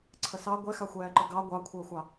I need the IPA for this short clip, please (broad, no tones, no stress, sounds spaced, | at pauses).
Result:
ǀʰ ə s ɑ ɡʷ ɛ x a xʷ ɛː ǃ ə ɡ ɑ ɡʷ ɑ kʷʰ əː xʷ ɑ